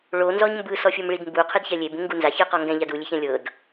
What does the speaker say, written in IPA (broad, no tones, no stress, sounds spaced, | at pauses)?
ɭ o n z ɔ ɲ m b ɯ s ɔ fʲ o m ɭ i d m b u qʰ ɯ d ç ɛ lʲ e b ũ ŋ ɡ u n z a ç ɯ q ɔ ŋ ɡ ɛ̃ ʎ a d u lʲ e ç ɛ̃ lʲ ɤ d